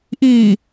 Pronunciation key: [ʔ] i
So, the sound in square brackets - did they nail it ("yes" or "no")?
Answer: yes